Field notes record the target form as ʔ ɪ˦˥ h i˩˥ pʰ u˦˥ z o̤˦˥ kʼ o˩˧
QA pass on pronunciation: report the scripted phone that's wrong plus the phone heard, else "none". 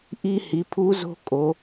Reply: ɪ˦˥ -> i˦˥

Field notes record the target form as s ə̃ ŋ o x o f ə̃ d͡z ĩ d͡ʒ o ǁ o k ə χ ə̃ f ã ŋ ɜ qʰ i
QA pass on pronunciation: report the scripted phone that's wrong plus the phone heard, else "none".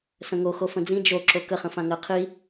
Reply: none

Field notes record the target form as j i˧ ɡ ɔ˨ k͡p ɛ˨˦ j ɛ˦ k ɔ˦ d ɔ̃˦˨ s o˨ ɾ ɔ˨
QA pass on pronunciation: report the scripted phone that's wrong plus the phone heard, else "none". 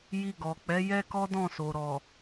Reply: none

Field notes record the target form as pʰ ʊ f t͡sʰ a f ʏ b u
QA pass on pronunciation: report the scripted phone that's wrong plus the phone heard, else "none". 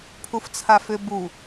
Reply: ʊ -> u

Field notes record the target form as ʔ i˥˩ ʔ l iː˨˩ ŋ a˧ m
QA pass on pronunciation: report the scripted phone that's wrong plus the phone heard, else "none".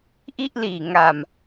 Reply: none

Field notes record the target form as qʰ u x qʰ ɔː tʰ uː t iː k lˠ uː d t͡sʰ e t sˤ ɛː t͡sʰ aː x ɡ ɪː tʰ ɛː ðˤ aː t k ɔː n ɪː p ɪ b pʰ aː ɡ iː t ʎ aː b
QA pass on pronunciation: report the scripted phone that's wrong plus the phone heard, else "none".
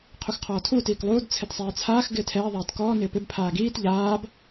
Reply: none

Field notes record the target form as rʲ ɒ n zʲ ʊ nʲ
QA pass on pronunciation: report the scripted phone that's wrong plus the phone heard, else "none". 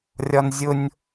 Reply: none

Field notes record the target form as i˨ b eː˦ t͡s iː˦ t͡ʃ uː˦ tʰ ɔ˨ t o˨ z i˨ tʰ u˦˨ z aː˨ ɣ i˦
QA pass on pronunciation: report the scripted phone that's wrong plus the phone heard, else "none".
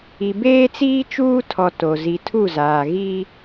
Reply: none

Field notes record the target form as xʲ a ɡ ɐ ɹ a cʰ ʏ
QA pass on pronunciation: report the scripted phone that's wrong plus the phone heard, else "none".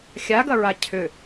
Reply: none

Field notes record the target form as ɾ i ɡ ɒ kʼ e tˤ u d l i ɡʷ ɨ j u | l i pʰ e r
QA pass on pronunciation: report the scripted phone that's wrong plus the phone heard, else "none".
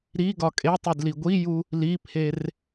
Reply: ɨ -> i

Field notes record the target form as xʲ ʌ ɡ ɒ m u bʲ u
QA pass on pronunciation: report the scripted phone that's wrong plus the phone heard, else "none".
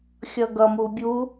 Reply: ɒ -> ʌ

